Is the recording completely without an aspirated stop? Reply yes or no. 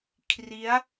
no